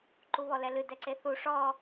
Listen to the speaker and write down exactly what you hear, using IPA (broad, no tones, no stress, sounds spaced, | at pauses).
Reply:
ǃ u β ɔ l ɛ l ɨ d ɛ ǀ e θ u ʂ ɔ